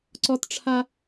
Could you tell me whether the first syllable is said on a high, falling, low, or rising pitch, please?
high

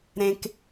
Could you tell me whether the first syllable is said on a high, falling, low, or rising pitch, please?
high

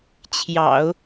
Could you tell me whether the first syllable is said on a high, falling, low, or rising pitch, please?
low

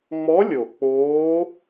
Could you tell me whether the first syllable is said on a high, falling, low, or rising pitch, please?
rising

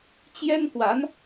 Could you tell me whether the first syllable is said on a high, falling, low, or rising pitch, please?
high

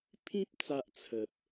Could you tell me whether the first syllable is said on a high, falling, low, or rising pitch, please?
high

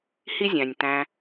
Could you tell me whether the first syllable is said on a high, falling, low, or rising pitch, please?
high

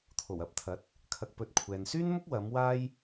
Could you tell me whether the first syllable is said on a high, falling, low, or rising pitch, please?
low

